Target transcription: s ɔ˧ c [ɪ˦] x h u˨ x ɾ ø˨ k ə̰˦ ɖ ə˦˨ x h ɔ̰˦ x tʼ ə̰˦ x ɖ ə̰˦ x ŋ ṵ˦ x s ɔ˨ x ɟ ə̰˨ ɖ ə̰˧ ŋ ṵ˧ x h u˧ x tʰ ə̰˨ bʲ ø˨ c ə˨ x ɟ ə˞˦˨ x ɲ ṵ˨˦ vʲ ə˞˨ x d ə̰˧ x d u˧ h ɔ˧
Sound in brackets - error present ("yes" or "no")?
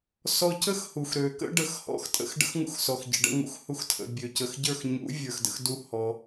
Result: yes